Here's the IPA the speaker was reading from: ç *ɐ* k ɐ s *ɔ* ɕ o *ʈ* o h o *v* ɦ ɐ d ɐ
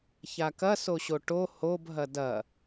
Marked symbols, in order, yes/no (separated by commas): no, no, yes, no